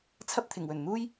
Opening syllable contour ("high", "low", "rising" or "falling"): high